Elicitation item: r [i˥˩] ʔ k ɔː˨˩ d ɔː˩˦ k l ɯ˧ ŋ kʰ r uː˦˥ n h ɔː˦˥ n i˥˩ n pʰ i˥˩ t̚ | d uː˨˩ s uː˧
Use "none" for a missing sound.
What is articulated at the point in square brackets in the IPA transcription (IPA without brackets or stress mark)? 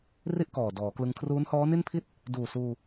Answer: i˥˩